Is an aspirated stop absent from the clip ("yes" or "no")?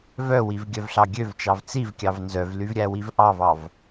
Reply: yes